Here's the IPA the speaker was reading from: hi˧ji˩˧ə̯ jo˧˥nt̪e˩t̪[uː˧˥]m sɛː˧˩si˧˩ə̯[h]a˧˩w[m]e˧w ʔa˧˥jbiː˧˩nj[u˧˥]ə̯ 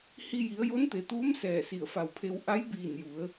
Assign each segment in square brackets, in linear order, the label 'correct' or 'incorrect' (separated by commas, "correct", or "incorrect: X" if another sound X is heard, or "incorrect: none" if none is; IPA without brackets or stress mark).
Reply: correct, incorrect: f, incorrect: pʰ, incorrect: u˩˧